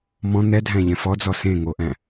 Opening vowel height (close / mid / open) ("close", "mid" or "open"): mid